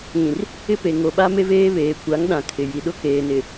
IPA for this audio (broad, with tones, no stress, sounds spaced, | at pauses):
ĩ˨ r | ɪ˦ p e˨ ŋ o˨ ɓ a˦ m e˦ v eː˦ β eː˨ kʷ a˨˦ ŋ ɗ ã˨ kʰ ɪ˨ j i˨ ɗ ʊ˦ k eː˨ n ɪ˨